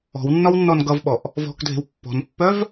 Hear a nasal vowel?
no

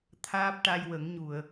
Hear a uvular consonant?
no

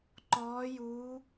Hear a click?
yes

